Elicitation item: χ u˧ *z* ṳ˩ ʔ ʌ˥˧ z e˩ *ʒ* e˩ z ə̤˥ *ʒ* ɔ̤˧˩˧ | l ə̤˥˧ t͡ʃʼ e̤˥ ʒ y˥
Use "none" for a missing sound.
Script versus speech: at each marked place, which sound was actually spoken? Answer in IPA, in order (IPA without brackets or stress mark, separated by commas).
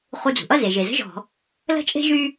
d͡z, ʒ, ʒ